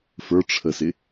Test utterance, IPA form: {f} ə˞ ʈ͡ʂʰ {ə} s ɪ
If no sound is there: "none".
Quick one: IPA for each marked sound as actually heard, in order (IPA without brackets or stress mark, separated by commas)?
f, ə